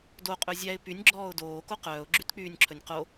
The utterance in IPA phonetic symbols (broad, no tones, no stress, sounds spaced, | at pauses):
d o qʼ ɵ zʲ æ ɪ̯ p y nʲ ɡ͡ǁ ɔː ʊ̯ d oː k o q œː ʊ̯ ɡ͡ǁ y t k͡p yː nʲ ǁʰ ɵ nʲ q o